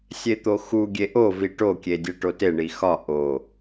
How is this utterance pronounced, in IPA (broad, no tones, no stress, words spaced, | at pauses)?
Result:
sʲet̪oxu ɡʲeʔovi ʈokʲedʲe ʈoteɳi xɒ ʔo